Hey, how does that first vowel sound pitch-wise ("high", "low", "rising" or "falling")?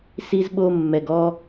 high